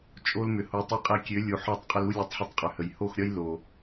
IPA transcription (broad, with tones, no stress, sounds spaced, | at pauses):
t͡ʃʼ o˦ l m ʏ˨ h o˨˦ tˤ i˧ qʼ ɛ˧ kʲ ø˨˦ lʲ u˨ ħ ɒ˦˨ tˤ qʼ ə˧ l u˦ lʲ ɒ˧ tˤ ħ ə˧ tˤ qʼ ʏ˨ h ə˨ j h o˦˨ x ɾʲ ɒ˦ j l o˨